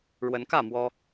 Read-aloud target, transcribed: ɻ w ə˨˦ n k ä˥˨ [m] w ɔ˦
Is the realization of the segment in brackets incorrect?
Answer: no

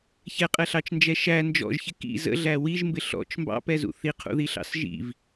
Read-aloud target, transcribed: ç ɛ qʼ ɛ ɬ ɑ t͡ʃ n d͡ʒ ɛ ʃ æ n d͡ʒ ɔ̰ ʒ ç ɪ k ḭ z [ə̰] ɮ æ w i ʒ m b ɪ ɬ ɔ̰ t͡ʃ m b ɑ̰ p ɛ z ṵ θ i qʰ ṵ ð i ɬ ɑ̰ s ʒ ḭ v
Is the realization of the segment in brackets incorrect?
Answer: no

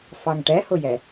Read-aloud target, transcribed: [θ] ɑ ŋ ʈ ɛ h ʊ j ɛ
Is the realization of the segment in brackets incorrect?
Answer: yes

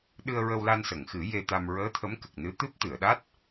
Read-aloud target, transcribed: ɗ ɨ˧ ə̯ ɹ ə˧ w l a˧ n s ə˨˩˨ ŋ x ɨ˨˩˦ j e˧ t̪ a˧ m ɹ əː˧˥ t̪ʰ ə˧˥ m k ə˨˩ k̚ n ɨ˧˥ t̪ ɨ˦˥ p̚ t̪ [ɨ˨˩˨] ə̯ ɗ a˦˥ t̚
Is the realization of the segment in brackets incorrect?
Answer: no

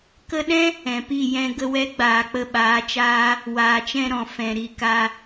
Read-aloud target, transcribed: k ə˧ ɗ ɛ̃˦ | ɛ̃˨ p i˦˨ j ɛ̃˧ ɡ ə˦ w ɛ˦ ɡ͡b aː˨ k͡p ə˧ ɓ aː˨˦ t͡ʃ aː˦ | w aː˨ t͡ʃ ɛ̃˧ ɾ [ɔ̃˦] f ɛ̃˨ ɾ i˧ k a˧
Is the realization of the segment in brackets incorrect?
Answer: yes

